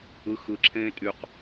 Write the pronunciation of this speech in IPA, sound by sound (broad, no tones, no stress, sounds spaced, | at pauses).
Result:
ɯ x ɯ ǁʰ ẽː tʼ y q